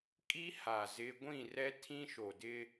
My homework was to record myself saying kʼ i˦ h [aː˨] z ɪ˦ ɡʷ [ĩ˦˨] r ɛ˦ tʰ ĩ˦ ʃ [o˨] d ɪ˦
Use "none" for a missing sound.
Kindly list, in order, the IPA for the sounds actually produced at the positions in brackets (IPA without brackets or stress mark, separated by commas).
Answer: aː˨, ĩ˦˨, o˨